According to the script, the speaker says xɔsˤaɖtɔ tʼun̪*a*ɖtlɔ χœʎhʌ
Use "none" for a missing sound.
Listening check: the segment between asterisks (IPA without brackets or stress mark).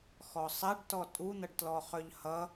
ʌ